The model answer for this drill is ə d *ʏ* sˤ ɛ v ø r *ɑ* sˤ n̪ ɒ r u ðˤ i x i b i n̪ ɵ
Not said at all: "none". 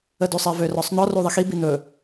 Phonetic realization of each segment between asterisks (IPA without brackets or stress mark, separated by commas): ʏ, ɒ